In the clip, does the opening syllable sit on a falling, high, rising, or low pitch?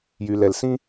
low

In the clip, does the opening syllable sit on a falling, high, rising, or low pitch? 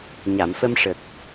low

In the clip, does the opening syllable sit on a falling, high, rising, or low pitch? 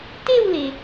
falling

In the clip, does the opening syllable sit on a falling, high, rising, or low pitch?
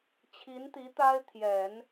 rising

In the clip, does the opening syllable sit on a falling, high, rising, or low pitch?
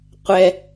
high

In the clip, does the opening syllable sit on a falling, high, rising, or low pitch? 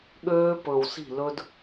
high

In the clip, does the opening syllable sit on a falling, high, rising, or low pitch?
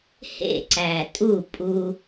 falling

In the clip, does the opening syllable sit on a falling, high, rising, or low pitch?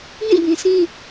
falling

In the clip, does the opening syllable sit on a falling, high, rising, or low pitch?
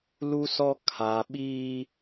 high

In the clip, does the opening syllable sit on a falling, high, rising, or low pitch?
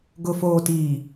low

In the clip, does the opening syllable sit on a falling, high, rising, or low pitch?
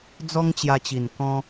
high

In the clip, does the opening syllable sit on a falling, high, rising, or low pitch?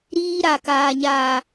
high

